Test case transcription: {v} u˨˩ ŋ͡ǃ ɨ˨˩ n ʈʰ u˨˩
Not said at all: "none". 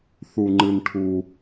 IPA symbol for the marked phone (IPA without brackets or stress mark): θ